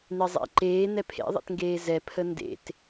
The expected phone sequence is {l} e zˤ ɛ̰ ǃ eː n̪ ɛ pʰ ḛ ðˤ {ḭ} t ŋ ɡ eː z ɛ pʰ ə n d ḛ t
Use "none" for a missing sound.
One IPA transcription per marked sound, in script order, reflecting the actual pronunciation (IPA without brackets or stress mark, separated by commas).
n̪, ḛ